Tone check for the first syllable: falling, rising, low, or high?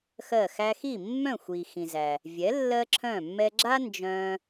falling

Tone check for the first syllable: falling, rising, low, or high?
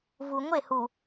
low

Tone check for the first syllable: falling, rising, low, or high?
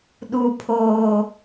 low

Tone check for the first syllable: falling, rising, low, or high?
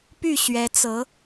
falling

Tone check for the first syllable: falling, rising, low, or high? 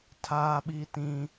high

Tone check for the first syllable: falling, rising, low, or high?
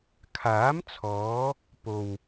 rising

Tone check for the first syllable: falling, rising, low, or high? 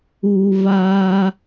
low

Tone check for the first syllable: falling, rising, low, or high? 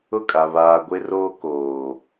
falling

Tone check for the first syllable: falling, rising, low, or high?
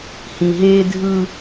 low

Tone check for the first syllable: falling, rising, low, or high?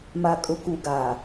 low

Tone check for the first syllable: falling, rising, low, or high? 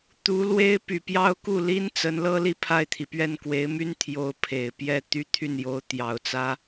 rising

